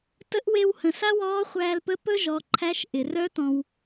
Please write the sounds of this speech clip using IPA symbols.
t ə˧˥ ʔ w e˧ w h ə̃˩ s a˥ w ɔː˧˥ χʷ æː˧ l p ə˧˥ p ɵ˥ ʒ ɔ˩˧ ǃʰ æ˧˥ ʃ ʔ ɪ˩ r œ˧˥ t ɔ̃˩ w

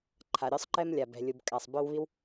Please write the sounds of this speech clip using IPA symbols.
ǃʰ a˩ ɾʲ ɔ˥ sˤ ǃ ɛ˥ m lʲ a˩ b ɛ̤˩ lʲ u˩ b kʼ a˩ sˤ b œ˥ w β i˥ w

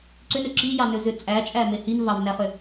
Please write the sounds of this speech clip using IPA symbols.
ǀ ʏ n ø ǁ i j ɑ n ø z ʏ t͡sʼ æ t͡ʃʼ æ m e h i n v ɑ v n æ χ ʏ

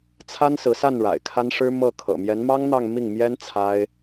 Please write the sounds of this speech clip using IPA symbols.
t͡sʰ a˥ n s ɹ̩˧˥ s a˥˩ n ɻ a̰˨˩ ɪ̯ kʰ a˥ n ʂ ɻ̩˥ m ɤ˥˩ kʰ ɤ̰˨˩ m j ɛ˧˥ n m ɑ˥ ŋ n̪ ɑ˥˧ ŋ m i˥˩ ŋ m j ɛ˥ n t͡sʰ a˥ ɪ̯

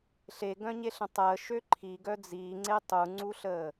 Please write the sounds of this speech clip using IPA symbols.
ɬ e ɡ œ̃ ɲ e ɬ ə̃ tˤ əː ʃ ø ǃʰ i ɡ œ d͡z iː ŋ͡ǀ e tˤ u ŋ͡ǀ u ɬ əː

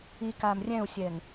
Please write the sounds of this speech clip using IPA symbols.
i k aː m rʲ ɛ̃ u̯ sʲ ɛː ŋ

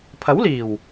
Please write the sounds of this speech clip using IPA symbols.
pʰ ɐ˨˥ w l iː˨˩ w

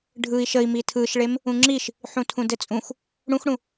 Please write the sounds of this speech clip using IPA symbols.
ɖʱ ɯ i̯ ʃ ə i̯ m i tʰ ɯ ʃ ɭ e m | ũ ŋ͡ǁ i ʃ | ħ ũ tʰ ũ d ɘ t͡sʼ ũ x | ɽ ũ x ɽ ũ

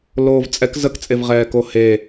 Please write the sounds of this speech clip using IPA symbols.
l oː v t͡sʼ ɛ k z ə k t͡sʼ e v ʁ ɛː k o h e

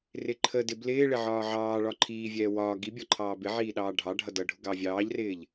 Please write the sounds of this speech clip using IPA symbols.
r ɪ ǃʰ ə d ɪ b l ɪː ɭ ɪ ʕ ɒː ʕ ɑː ɭ ɒ ǃʰ iː vʲ ɛː w ɒː ɡ i bʲ ɒ ǃʰ ɑː b ɪ ʕ iː ɗ ɑː ɖʱ ɑ ɖʱ ʌ d ʌ ɖʱ ʊ ɡ ɑ vʲ ɑː ʎ r ɪː ʎ

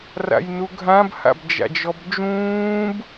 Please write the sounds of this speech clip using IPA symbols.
r a̰ j n u ɡʱ ã b h a̰ b d͡ʒ a̰ d͡ʒ ɔ b d͡ʒ ũː b

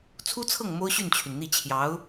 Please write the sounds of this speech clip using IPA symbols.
t͡sʰ u˥ t͡sʰ ɤ˥˩ ŋ m o˥ ʊ̯ ɕ y˥˩ n t͡ɕʰ y˩ n n̪ i˥˩ t͡ɕʰ j ɑ˧˥ ʊ̯

